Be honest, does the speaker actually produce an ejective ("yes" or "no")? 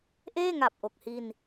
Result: no